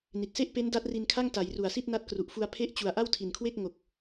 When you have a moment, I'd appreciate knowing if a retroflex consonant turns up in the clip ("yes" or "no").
no